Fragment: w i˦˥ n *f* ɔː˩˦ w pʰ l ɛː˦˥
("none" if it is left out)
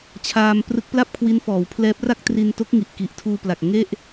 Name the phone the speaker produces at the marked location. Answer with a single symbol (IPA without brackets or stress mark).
f